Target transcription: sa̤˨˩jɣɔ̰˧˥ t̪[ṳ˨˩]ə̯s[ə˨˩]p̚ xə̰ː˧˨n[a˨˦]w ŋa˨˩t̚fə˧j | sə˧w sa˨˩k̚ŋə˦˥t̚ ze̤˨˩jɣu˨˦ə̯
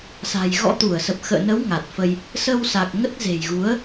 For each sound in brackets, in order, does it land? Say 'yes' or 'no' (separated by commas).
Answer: no, yes, no